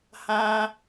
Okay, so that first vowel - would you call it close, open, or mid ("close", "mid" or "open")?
open